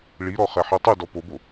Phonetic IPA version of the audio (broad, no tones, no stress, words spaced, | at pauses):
ɭiɾɔ χɛħitˤʉdɔ pobo